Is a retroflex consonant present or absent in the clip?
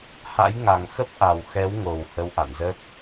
absent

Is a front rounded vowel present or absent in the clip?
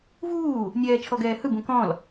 absent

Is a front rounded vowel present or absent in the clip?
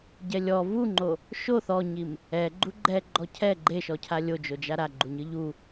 absent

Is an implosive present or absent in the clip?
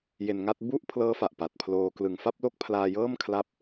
absent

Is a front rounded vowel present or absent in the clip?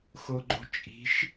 absent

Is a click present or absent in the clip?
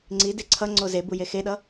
present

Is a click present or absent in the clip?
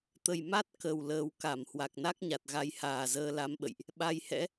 absent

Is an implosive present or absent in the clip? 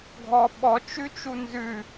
present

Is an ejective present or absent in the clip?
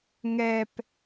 absent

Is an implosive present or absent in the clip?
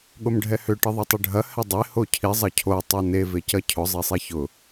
present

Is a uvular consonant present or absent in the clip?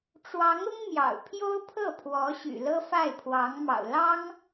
absent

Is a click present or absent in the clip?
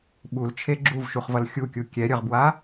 present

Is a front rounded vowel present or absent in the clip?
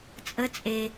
absent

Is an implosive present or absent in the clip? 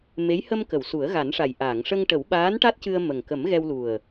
present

